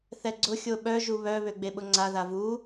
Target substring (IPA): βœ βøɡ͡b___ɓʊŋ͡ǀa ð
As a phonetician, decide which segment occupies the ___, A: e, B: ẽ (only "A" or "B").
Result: A